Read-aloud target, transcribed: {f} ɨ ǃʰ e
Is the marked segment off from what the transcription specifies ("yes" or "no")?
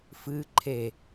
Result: no